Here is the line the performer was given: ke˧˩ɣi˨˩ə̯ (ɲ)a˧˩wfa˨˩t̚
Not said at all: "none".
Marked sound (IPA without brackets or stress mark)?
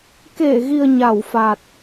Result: ɲ